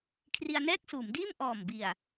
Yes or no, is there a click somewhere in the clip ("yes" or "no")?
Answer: no